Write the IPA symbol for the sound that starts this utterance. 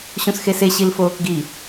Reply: ɕ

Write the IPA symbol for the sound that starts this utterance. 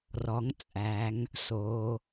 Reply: r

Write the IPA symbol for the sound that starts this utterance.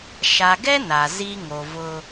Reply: ʃ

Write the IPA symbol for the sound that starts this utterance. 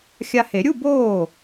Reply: xʲ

